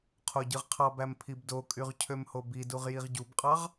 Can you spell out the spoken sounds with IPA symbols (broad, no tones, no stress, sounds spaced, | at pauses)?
qʰ o ɟ ɯ ʁ qʰ ɑ b æ m pʰ i b d o kʼ y ʁ cʰ ø m h o b i d u ʁ j i ʁ ɟ u b qʼ ɑ ʁ